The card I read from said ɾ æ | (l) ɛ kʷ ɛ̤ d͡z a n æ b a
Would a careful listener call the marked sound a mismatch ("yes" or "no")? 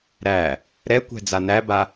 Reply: yes